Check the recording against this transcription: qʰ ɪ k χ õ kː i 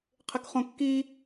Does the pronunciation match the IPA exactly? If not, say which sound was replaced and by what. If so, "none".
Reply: none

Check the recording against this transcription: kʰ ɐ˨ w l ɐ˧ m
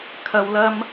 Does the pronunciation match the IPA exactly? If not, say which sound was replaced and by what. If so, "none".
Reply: none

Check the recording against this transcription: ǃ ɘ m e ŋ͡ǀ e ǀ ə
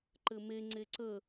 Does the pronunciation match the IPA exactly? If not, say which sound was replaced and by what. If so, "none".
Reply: none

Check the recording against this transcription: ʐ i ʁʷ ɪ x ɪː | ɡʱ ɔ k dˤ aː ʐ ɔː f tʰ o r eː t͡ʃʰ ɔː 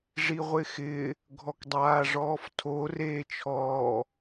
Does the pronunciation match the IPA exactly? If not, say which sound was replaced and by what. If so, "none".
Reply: none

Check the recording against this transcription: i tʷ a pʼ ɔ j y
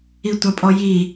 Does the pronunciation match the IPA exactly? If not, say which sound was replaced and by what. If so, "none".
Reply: y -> i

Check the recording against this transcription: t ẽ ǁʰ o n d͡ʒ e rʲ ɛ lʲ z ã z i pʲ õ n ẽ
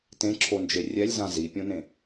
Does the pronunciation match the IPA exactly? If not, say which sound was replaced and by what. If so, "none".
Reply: none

